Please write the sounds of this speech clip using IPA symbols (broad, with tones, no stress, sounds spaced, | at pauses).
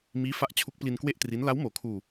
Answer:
m iː˦˥ f a˦˥ ʔ t͡ɕʰ u˦˥ k̚ p l i˧ n k w e˥˩ ʔ t r i˦˥ n l a˦˥ w m oː˩˦ kʰ uː˧